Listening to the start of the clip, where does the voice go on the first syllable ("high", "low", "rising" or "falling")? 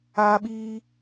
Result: high